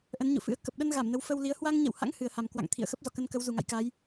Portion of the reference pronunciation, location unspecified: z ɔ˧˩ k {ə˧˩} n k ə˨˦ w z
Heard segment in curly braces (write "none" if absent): ə˧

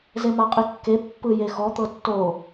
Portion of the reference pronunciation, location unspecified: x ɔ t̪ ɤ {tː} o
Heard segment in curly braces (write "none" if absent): tː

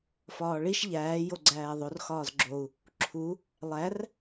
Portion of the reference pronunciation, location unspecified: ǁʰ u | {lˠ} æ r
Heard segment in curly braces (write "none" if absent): lˠ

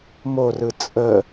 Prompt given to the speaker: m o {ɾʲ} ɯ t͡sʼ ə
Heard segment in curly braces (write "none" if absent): r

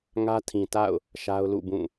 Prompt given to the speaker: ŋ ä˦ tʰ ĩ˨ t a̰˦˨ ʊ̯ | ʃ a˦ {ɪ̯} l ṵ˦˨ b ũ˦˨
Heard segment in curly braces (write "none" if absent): ʊ̯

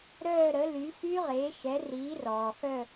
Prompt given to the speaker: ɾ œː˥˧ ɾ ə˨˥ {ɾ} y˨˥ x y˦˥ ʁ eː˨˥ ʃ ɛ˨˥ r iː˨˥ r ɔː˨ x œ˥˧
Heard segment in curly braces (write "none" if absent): l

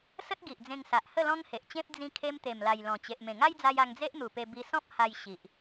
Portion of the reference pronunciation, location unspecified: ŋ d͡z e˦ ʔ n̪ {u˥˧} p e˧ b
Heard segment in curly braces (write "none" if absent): u˨˩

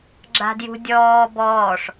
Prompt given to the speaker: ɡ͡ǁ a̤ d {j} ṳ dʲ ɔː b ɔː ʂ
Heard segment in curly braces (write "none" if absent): j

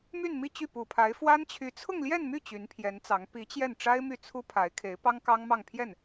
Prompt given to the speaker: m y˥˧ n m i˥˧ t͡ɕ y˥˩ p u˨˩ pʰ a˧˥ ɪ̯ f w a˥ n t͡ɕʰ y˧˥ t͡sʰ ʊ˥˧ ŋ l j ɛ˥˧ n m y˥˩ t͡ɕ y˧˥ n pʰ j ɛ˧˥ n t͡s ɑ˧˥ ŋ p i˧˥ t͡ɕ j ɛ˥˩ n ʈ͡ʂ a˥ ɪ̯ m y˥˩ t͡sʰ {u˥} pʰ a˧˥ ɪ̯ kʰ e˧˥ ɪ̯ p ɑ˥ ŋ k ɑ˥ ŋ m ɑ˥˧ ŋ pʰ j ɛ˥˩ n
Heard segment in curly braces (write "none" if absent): u˥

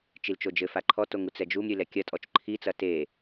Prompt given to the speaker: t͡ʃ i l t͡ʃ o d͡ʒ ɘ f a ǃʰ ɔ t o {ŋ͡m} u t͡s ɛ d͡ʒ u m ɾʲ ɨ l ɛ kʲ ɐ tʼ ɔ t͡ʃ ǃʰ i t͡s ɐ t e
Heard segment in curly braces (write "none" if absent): ŋ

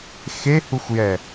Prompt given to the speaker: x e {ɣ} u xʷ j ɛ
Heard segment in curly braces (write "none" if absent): h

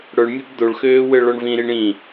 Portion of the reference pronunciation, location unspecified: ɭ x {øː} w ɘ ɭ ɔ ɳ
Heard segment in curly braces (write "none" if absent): øː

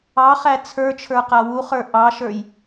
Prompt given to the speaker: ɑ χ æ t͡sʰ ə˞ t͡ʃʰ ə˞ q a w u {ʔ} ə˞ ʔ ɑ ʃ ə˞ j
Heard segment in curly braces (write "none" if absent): χ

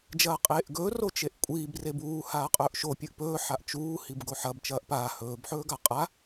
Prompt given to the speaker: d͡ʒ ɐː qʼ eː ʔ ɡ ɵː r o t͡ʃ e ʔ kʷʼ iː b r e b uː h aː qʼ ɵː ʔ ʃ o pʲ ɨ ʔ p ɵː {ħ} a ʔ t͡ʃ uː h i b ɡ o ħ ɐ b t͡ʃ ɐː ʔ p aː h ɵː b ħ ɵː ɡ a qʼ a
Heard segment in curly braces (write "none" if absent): ħ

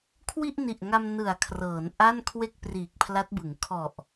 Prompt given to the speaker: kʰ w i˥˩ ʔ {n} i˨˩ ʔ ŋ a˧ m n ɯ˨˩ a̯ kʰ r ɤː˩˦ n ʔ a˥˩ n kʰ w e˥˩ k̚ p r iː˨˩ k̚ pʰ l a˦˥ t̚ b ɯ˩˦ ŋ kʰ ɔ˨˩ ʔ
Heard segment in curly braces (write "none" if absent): n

